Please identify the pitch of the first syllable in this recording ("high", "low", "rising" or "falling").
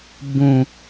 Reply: high